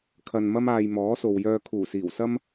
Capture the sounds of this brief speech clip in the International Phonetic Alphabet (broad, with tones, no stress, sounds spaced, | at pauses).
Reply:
kʰ ɐ˨ n m ɐ˧ m aː˨ j m ɔː˨˥ s o˨ w j œː˧ kʰ uː˨˩ s iː˨˩ w s ɐ˥ m